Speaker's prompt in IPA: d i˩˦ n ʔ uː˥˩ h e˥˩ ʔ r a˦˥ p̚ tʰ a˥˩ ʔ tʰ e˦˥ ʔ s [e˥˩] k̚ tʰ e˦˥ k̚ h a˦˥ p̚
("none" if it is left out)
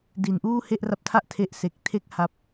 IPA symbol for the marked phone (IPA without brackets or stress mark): e˨˩